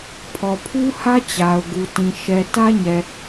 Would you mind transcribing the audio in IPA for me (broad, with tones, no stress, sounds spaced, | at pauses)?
pʰ ɔ˨ pʰ u˦ h ä˦ t͡ɕ a˨ ʊ̯ ɡ u˨ t ĩ˨ ʃ ɛ˨ t ä˦ ɲ ɛ˨